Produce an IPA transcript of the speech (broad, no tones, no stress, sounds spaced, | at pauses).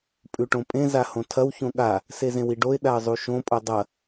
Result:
pʼ ʉ ʈ õ pʼ ẽ z a h õ tʰ ɐ w ç õ ɠ a | s e z ẽ w i ɖ o ɪ̯ ɗ a ə̯ zˤ u ʃ õ pʼ o dˤ ɐ